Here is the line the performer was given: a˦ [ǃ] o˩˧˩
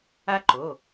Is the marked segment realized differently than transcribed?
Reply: no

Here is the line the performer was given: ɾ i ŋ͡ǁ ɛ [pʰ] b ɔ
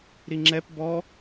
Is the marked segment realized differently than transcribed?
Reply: yes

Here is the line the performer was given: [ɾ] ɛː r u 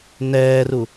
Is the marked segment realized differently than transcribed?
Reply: yes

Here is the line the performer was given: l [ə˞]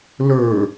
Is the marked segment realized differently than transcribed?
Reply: no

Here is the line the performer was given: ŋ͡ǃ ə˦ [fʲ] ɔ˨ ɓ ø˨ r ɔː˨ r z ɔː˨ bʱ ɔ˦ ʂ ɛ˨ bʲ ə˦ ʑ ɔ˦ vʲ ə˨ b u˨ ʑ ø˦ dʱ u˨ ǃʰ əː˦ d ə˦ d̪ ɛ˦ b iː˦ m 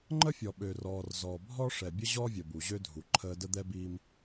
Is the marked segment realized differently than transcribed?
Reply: no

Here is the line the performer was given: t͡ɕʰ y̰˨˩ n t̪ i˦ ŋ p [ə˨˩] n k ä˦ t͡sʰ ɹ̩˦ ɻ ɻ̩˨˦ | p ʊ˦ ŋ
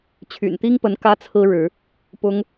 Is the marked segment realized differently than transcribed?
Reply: yes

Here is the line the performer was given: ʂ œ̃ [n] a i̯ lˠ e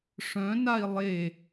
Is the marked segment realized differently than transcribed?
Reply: no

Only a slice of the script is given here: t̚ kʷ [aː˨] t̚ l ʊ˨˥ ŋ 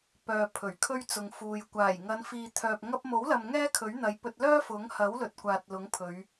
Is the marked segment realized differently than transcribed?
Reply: no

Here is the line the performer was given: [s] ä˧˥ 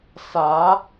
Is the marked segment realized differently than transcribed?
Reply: no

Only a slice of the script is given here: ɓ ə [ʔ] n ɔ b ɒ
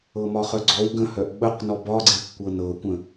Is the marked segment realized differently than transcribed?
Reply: yes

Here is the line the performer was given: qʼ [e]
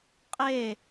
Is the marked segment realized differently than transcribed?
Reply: no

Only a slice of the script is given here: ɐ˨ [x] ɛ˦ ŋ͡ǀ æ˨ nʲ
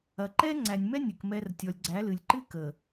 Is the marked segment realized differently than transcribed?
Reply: yes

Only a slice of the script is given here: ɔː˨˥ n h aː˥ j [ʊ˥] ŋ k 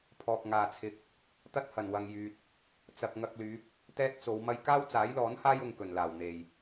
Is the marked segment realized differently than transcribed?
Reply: yes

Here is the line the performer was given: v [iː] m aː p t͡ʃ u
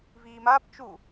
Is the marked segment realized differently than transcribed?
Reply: no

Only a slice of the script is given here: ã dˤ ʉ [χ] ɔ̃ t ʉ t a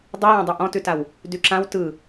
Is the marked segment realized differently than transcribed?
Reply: yes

